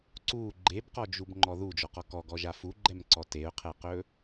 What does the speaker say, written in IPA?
ǀ u ɡ͡ǃ e b q ɔ d͡ʒ u b ŋ͡ǃ ɔ ð u d͡ʒ ɔ q ɔ k ɔ ɡ ɔ ʒ a f u ɡ͡ǃ ɛ m ǀ ɔ t e ʊ̯ qʰ ɛ q ɵ

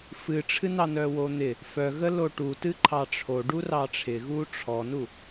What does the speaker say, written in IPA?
f ɨ ʈ͡ʂʰ ɨ n ɑ n œ w o n̪ ɪ | f œ ɣ ə l o ʈ u t ɨ ǃʰ ɑ ʈ͡ʂʰ o ɖ u r ɑ ʈ͡ʂʰ ɪ ɣ u ʈ͡ʂʰ ɔ n u

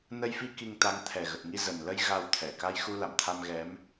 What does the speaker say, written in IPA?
n ə˧ j f i˧ k i˧ ŋ t̪ a˨˦ ŋ t̪ʰ ɛ˨˩ ɣ ə˨˩ t̚ ŋ i˧ z ə˨˩ n l ə˧ j ɣ a˧ w t̪ʰ ɛ˧˩ k a˧ j x u˧ l a̰˧˨ m t̪ʰ a˧ m ɣ ɛ˨˦ m

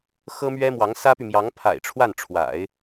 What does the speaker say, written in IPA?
x ɤ˥ m ɥ ɛ˥ m w ɑ˧˥ ŋ s ä˥ p y˨ m j ɑ˧˥ ŋ pʰ a̰˨˩ ɪ̯ ʈ͡ʂʰ w a˥˩ n ʈ͡ʂʰ w a̰˨˩˦ ɪ̯

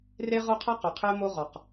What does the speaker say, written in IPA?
r e˦ ʁ o˦ qʰ a˦ q u˨ qʰ e˦ m o˦ ʁ ɔ˨ q

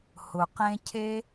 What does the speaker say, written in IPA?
h ʊ˧ q ẽ˥ cʰ e˥

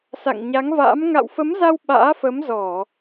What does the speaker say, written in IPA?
s a̰˧˨ ŋ ɲ a˨˦ ŋ v a̰ː˧˥ m ŋ a̰˧˨ w f ə˨˦ m z a˧ w ɓ a̰ː˧˥ f ə˨˦ m z ɔ˧˩˨

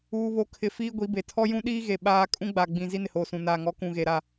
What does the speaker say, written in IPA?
uː˦ β o˦ kʰ ɪ˦˨ f iː˦ ɡʷ i˨˦ b e˨ tʰ ɔ˦ j ũ˦ ɗ iː˦ ɣ e˨ ɓ aː˦ kʼ ũ˦ ɡ͡b a˨ ɡ͡b ĩ˨ z i˦ n ɪ˨ h oː˨ s ũ˨ n aː˨ ŋ ɔ˨˦ k ũ˨ ɣ e˨ ɾ a˦˨

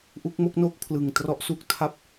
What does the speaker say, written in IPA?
ʔ u˦˥ k̚ m o˥˩ k̚ n o˥˩ k̚ pʰ l ɯ˨˩ ŋ t r ɔ˦˥ ʔ s u˦˥ k̚ tʰ a˥˩ p̚

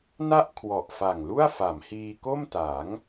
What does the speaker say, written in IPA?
n a˥˩ ʔ kʰ w ɔ˨˩ ʔ f a˨˩ ŋ l u˥˩ a̯ f a˩˦ m h iː˧ k o˥˩ m t a˩˦ ŋ

